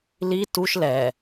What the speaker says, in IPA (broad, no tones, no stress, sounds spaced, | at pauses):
l i t u ʃ l ɛ